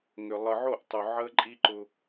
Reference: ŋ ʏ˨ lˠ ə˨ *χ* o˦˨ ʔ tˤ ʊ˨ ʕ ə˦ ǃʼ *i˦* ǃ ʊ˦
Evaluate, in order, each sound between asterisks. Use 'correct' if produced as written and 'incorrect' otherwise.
incorrect: ʕ, correct

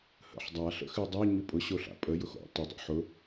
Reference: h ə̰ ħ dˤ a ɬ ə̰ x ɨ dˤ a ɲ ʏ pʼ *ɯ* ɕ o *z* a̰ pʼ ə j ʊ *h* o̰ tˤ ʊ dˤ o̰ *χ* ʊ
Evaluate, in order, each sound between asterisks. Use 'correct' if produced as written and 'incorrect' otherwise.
incorrect: ʊ, incorrect: ɬ, incorrect: x, incorrect: ħ

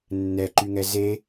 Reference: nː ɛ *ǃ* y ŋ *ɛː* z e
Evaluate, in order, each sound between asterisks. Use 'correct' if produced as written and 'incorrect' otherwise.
correct, incorrect: ɛ

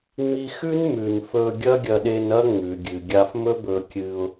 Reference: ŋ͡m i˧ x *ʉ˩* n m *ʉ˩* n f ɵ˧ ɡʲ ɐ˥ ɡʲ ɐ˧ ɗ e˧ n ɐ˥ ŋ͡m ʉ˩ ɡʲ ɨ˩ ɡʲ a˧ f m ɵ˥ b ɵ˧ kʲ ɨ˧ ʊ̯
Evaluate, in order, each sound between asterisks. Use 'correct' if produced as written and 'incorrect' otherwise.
incorrect: ʉ˥, correct

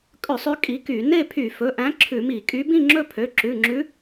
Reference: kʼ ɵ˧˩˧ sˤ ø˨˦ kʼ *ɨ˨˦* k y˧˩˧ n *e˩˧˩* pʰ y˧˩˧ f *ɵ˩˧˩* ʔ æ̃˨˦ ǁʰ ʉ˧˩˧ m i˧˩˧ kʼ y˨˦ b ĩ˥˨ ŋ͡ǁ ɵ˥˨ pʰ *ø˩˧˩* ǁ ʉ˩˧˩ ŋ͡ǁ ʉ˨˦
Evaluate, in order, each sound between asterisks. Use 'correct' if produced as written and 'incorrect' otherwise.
incorrect: i˨˦, incorrect: e˥˨, correct, correct

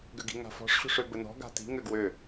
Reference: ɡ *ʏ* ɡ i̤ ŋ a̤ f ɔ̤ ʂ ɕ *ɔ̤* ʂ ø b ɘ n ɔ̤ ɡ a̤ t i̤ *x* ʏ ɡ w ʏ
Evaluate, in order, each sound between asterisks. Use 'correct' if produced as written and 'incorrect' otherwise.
correct, incorrect: o̤, incorrect: ŋ

